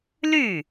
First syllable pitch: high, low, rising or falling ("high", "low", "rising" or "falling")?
falling